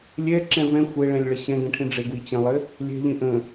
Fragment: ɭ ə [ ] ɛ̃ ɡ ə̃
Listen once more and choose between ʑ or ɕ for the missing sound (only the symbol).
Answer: ɕ